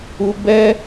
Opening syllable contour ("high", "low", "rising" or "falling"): high